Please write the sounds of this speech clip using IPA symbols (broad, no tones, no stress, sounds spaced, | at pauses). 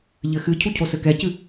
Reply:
ʎ ɘ x ɨ cʰ u cʰ o s ɘ k ɛ c ɨ